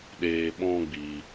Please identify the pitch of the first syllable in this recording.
high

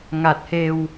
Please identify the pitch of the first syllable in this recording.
low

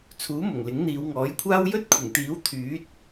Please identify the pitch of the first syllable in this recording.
rising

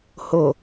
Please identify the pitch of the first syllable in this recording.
low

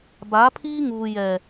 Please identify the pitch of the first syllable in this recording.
rising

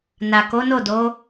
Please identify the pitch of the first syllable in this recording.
low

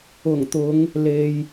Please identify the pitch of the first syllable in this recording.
low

